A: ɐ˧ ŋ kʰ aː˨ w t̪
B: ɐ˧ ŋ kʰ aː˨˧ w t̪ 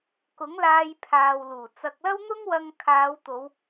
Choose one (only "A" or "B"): B